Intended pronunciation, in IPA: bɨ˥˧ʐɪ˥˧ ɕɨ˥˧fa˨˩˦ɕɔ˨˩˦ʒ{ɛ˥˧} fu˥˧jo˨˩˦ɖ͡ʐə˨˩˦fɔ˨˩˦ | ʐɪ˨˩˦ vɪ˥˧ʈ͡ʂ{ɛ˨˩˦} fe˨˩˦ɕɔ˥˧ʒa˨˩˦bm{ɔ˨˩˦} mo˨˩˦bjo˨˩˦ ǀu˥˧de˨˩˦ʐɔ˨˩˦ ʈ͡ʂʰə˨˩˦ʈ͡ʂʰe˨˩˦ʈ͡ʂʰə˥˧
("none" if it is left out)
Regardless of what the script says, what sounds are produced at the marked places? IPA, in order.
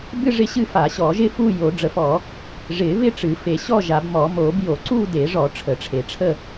ɪ˥˧, ɨ˨˩˦, ɔ˨˩˦

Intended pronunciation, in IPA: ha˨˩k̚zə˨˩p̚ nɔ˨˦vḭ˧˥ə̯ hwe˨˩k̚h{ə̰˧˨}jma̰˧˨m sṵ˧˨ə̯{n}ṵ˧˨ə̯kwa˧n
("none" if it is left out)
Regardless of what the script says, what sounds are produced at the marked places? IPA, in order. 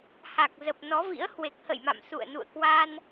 ə̰˧˨, n

